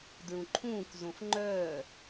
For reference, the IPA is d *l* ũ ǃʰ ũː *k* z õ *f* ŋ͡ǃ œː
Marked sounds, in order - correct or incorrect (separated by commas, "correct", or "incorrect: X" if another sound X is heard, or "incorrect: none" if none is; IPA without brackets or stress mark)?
incorrect: ɹ, correct, correct